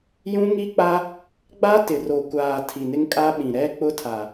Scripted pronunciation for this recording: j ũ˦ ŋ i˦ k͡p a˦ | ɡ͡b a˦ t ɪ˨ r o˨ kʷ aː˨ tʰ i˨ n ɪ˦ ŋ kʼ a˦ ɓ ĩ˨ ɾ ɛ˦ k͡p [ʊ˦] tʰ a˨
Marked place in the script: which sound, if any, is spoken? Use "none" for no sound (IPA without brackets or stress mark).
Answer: ʊ˦